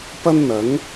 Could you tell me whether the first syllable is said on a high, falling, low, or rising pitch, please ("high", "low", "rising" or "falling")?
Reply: high